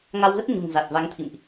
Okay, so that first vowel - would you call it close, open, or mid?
open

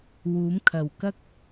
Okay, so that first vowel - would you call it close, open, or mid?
close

